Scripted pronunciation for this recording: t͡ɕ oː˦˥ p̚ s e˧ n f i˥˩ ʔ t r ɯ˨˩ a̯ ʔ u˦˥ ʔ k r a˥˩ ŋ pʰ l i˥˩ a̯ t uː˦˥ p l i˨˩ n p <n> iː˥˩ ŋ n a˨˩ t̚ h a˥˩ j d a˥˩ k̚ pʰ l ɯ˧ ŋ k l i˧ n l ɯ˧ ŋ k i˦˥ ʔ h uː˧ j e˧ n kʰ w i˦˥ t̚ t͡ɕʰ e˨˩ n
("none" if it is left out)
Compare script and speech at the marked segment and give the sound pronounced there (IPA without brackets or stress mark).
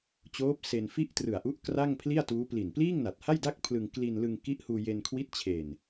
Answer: l